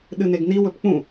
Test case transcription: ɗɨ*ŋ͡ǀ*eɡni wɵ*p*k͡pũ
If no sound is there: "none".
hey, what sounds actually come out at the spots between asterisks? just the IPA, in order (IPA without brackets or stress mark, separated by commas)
n, p